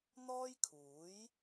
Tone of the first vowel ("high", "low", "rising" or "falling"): high